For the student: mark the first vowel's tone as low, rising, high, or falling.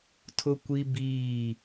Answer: high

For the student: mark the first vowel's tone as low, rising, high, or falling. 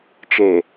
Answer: low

